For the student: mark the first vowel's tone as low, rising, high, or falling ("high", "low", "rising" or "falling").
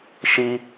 high